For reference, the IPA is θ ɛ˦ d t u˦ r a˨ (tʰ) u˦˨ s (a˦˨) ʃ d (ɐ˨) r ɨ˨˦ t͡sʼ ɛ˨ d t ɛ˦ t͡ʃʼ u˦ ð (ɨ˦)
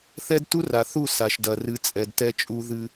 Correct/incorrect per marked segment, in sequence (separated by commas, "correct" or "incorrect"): incorrect, incorrect, correct, correct